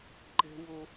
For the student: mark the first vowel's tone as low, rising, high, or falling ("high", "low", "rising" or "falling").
high